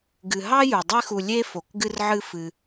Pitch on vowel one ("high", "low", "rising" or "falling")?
low